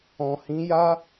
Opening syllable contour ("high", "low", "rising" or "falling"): low